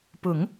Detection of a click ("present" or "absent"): absent